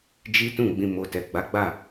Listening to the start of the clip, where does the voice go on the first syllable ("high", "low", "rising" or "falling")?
high